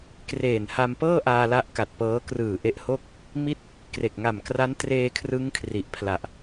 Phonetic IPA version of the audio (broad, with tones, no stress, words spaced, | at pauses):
kreː˨˩nha˧mpɤː˥˩ʔaː˧ la˦˥ʔka˨˩t̚pɤː˦˥ krɯː˨˩ʔe˦˥ʔho˥˩k̚ | mi˥˩t̚ | kre˨˩k̚ ŋa˨˩mkra˦˥ntreː˧ kʰrɯ˦˥ŋkʰri˨˩ʔpʰla˨˩ʔ